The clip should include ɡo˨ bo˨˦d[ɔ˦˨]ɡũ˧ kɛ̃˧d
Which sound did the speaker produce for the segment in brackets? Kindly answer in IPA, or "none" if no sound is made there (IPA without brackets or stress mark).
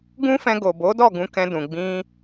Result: ɔ˦˨